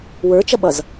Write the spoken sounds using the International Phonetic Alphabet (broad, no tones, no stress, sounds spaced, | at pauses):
w ə˞ t͡ʃ ʌ ɓ ʌ z